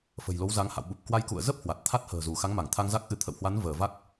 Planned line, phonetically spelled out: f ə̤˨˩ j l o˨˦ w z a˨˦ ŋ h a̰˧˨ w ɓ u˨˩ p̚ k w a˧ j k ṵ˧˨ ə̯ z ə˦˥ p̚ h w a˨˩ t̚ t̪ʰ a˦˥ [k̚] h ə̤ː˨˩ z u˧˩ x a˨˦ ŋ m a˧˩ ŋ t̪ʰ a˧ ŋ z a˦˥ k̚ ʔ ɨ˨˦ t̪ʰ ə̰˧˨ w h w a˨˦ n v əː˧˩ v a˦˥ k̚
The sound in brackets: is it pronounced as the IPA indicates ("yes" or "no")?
no